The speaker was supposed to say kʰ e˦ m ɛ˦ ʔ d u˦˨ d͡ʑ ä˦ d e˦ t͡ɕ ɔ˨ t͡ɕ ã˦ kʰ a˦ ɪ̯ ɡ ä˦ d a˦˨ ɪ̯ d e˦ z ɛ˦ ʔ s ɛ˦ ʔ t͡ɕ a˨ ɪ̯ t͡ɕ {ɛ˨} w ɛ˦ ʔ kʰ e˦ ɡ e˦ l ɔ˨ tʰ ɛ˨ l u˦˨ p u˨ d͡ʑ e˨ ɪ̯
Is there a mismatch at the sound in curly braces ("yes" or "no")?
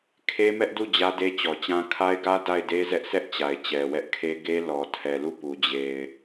no